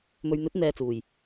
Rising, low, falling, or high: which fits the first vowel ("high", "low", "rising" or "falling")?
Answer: low